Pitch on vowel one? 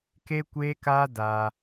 high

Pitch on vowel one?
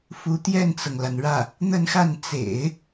rising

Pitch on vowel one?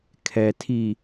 low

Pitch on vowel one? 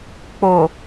low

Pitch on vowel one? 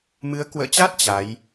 rising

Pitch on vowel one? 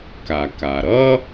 low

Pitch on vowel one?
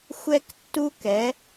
high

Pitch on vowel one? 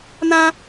high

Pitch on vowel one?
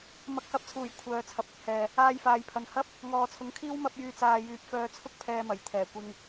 rising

